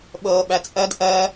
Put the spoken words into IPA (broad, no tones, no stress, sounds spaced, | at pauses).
ɓ ɤː ɓ æ t͡sʼ ɜ d ʔ ɜ